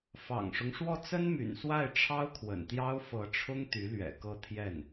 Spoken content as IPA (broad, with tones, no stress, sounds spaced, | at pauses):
f ɑ̰˨˩ ŋ ʂ ʊ˦ ŋ ʂ w ɔ˥˩ t͡s ə˥ n m y̰˨˩ n s w a˥˩ ɪ̯ ʈ͡ʂʰ ɑ˥ ʊ̯ kʰ w ə̰˨˩ n t̪ j ɑ˥ ʊ̯ f ɤ˧˥ ʈ͡ʂʰ ʊ˥ ŋ t̪ y˧˥ l ɥ ɛ̰˨˩ k ɤ˥˧ t̪ʰ j ɛ˥˩ n